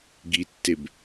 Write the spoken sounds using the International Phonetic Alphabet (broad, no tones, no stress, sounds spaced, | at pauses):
ɡ i tː e b